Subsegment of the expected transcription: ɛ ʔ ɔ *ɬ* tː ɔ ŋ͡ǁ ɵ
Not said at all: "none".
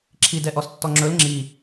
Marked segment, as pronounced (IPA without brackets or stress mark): s